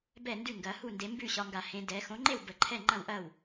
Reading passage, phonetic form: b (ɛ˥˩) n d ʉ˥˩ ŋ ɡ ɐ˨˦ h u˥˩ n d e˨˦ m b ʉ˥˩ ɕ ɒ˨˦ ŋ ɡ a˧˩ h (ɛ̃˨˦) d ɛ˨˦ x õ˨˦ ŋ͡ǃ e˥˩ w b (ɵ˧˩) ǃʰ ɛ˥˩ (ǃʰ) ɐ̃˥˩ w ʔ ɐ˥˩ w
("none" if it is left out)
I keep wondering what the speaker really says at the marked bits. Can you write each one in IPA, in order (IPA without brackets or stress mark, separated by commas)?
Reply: ɛ˥˩, ẽ˨˦, ə˧˩, ŋ͡ǃ